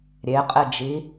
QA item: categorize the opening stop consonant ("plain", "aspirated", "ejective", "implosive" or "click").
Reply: ejective